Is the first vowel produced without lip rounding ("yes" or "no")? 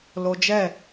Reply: no